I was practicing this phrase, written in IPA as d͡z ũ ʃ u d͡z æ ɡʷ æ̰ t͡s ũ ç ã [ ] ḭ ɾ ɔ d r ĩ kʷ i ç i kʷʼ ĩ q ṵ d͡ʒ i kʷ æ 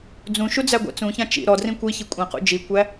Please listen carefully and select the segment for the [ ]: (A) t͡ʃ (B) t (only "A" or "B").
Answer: A